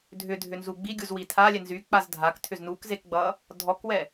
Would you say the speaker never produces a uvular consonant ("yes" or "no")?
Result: yes